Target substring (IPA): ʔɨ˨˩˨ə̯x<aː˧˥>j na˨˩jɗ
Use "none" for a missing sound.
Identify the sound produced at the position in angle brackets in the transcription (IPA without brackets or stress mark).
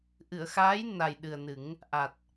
aː˧˥